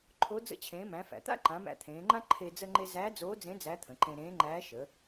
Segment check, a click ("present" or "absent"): present